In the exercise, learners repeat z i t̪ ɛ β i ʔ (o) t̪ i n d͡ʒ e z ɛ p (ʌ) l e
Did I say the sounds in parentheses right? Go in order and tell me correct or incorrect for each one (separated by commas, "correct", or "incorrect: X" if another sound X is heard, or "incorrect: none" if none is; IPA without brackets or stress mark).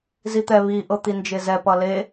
incorrect: ɤ, correct